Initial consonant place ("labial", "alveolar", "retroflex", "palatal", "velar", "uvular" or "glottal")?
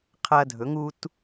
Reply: uvular